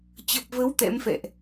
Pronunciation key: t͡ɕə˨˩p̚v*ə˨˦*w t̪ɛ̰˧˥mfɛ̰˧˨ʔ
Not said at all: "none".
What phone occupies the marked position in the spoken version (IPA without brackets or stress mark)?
ə˨˦